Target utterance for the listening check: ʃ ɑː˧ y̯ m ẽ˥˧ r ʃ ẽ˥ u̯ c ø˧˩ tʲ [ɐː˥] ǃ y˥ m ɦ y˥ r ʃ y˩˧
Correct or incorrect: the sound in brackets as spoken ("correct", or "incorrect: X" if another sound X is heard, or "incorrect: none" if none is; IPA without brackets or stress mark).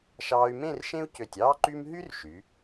incorrect: ɑː˥